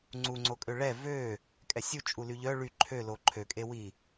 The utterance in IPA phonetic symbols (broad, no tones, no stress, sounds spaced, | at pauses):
ŋ͡ǀ u ŋ͡ǀ o kʼ ø ɭ ɛ v ø | kʼ ɛ sʲ u t͡ʃʼ u l y ʎ œ ɭ y ǃʰ ø l o ǃʰ ø kʼ e w i